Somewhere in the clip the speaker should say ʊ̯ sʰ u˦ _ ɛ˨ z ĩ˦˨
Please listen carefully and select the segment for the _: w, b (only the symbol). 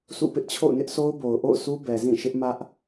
b